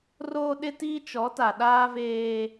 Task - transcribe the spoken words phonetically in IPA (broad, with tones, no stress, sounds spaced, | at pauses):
r oː˦ ɗ ɪ˦ t iː˦ t͡ʃ ɔ˨˦ t a˨ ɗ aː˦ v eː˦